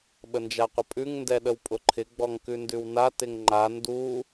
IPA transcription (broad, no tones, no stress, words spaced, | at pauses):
ɓənd͡ʒaqʷəpʼʉŋ ndɛɗəwpʼʊǃʰɪ ɡ͡bɔŋkʉndʉwna tɪŋŋ͡ǃa ndu